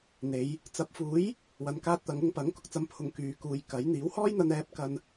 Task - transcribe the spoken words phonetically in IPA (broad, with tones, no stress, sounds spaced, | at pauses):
n̪ e˨˧ j | t͡s ɐ˨˥ p̚ f uː˨˥ j | w ɐ˨ n k aː˧ t̚ t̪ ɐ˨˧ ŋ ʊ˧ ŋ p ɐ˨˥ ŋ k ʊ˨ k̚ t͡s ɐ˧ m pʰ ʊ˨˧ ŋ k yː˨ k uː˨˧ j k ɐ˨˥ j n̪ iː˨˥ w h ɔː˥ j n̪ ɐ˧ n ɛː˧ p̚ k ɐ˧ n